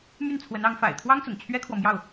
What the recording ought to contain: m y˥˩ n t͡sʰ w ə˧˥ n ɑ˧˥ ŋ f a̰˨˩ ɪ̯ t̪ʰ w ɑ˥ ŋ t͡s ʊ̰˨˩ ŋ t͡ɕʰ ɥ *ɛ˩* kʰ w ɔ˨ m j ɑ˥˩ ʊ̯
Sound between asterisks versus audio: incorrect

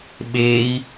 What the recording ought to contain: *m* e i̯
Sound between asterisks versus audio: incorrect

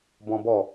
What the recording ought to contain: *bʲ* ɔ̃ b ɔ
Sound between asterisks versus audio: incorrect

